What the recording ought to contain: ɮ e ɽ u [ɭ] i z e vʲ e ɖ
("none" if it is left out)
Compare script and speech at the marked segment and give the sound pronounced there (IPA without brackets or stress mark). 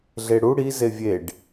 ɽ